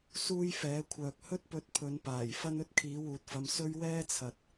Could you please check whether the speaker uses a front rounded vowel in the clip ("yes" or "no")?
yes